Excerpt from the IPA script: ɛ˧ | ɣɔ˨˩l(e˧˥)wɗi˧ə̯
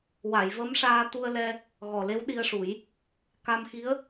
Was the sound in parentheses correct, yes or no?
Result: yes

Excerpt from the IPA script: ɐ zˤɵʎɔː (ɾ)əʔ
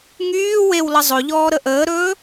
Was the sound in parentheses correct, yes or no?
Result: yes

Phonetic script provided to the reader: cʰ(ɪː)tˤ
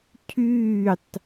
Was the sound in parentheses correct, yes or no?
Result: no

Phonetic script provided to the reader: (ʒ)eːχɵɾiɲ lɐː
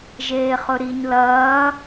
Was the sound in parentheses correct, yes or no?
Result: yes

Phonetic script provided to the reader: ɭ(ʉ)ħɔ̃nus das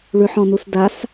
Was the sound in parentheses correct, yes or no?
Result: yes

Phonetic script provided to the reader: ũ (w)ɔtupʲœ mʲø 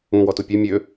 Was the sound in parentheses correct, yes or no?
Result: yes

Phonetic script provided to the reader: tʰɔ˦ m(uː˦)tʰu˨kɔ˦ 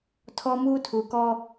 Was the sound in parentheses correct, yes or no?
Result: yes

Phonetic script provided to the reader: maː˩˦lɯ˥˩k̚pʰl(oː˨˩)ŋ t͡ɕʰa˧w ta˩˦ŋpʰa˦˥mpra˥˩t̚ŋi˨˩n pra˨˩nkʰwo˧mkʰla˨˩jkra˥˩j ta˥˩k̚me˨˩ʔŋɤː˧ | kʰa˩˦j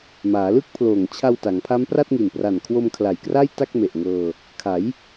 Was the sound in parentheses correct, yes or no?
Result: yes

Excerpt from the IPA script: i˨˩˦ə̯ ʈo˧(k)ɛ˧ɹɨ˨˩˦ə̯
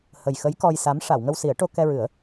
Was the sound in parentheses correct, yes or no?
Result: yes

